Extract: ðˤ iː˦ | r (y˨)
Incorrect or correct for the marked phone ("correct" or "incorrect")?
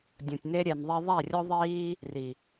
incorrect